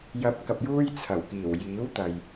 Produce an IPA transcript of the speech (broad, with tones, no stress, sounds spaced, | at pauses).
j ɐ˨˥ p̚ k ɐ˨ p̚ j uː˥ j t͡sʰ ɐ˨˩ w k iː˨˩ w j iː˨˥ w t̪ ɐ˨ j